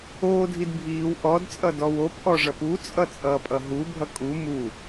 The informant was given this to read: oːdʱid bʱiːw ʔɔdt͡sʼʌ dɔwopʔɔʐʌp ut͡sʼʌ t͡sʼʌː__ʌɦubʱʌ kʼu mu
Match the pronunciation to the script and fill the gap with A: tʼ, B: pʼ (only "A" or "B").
B